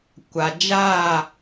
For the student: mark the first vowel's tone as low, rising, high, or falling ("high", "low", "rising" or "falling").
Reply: low